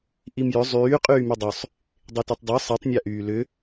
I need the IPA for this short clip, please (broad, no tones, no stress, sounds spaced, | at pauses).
ʔ i m j ʏ zˤ yː qʼ yː m y dˤ ʏ sˤ | dˤ e t y tˤ dˤ ə˞ sˤ i tˤ nʲ a ʔ yː l ʏ